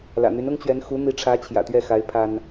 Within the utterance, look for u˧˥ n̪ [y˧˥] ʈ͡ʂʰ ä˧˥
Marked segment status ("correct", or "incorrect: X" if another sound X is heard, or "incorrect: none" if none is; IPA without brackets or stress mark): incorrect: i˧˥